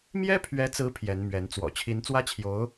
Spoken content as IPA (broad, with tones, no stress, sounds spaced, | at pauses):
m j ɛ˥ pʰ ɥ ɛ˧˥ t͡s ɹ̩˧˥ pʰ j ɛ˧˥ n m ɥ ɛ˧˥ n t͡s w ɔ̰˨˩ t͡ɕʰ i˧˥ n t͡s w ä˥ t͡ɕʰ j o˧˥ ʊ̯